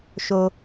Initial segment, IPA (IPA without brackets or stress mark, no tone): ʃ